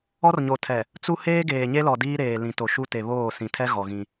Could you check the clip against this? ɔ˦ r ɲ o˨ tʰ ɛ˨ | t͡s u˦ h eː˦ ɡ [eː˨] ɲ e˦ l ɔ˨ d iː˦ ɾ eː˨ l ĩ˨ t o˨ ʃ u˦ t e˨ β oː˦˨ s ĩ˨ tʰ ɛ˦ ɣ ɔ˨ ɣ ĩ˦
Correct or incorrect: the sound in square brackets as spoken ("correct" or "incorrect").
correct